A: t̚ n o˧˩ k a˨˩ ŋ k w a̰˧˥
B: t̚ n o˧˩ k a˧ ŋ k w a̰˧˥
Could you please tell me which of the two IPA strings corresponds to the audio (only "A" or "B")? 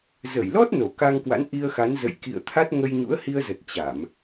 B